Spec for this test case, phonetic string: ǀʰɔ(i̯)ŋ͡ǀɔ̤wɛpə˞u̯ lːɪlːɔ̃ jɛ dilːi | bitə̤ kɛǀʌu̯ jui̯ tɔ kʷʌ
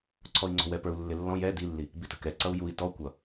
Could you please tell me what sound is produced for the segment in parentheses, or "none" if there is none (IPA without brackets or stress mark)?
i̯